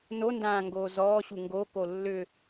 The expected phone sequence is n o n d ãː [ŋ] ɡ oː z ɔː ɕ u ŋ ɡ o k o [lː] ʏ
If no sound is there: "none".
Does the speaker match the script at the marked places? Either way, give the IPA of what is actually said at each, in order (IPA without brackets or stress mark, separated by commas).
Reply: ŋ, lː